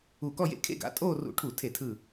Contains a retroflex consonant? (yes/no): yes